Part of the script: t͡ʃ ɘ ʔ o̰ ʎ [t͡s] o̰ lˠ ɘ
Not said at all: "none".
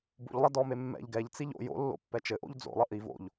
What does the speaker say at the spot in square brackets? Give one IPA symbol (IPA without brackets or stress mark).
d͡z